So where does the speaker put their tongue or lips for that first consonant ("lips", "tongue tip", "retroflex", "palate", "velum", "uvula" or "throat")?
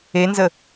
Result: tongue tip